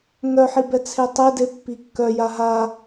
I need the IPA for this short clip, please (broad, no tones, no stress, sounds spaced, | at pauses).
ŋ œ ħ i b ɛ t͡sʰ e tˤ e d e pː i kː œ j a ɦ a